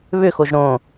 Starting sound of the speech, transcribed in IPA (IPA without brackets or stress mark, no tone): β